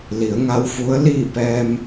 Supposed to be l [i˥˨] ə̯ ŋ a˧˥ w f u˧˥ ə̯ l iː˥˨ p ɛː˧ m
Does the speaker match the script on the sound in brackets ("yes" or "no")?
no